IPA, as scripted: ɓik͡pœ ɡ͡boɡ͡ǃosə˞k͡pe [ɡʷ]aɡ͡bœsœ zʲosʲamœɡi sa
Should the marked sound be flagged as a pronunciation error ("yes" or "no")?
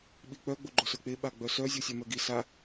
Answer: yes